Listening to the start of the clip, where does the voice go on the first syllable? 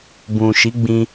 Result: low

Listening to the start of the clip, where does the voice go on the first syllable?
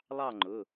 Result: falling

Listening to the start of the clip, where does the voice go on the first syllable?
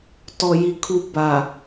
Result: low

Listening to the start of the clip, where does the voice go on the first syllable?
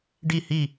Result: falling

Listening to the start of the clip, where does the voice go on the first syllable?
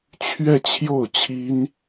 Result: falling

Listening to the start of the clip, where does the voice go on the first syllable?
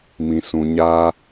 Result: low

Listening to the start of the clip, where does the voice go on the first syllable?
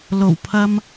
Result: low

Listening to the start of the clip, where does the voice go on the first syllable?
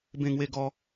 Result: falling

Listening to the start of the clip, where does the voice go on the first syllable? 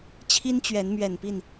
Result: high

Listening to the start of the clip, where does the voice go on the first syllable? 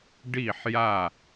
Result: falling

